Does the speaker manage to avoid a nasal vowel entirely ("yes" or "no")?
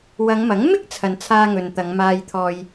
yes